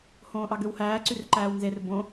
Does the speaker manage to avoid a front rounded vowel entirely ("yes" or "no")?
no